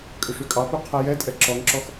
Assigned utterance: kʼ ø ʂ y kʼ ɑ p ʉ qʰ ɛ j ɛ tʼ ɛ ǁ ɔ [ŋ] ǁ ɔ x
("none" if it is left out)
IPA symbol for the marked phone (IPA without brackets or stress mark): ŋ